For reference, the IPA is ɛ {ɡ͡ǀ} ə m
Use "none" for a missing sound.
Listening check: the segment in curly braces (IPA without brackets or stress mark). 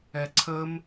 ǀʰ